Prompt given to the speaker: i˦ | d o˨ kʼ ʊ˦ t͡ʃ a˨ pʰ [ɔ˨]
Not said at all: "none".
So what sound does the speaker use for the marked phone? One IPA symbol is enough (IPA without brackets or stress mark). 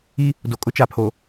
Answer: o˨